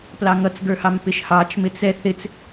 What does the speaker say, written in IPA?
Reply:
plɑŋʌt͡sɡə˞hɑm pɪʃhɑt͡ʃ mɪt͡sɛ θɪt͡s

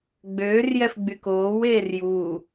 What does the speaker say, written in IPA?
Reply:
ɡ͡bøːrjɛf ɡ͡bykoːweːr ju

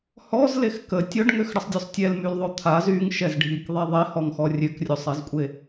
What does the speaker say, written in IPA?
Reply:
hɔzlex kə tʲɔɖŋøxɽəsˤdʲosˤ tʲɛlmylðˤo t̪ʰaz yŋʃɛzɖʱikðˤɛ ðˤehɔŋxɔ rʲøkrʲosˤɛzkʷʼe

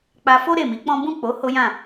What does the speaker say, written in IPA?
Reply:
k͡pa˧fo˦ ɾe˦˨mi˨˦k͡pɔ̃˦ bũ˦˨k͡po˨˦ ho˦jã˦˨

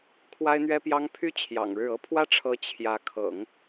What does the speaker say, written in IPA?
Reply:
kʰwa˥ɪ̯n̪ɥɛ˥pjɑ˥ŋ pʰy˥˩ t͡ɕʰjɑ̰˨˩ŋɻɻ̩˥˩ ɤ˥pʰwä˥ ʈ͡ʂʰɤ˥ t͡ɕʰjä˧˥ kʰɤ̰˨˩˦ŋ

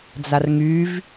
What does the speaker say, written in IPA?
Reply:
d͡zarŋyv

